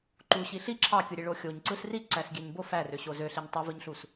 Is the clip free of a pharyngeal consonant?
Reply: yes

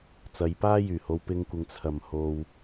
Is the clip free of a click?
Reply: yes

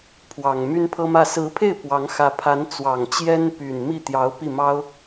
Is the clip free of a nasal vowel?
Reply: yes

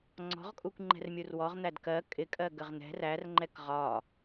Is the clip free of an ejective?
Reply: no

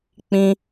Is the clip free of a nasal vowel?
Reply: no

